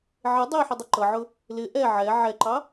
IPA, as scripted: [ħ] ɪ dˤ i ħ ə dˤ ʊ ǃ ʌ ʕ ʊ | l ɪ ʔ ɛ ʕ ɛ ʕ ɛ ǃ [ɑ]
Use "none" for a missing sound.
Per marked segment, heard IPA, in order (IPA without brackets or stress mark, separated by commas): ʕ, ɑ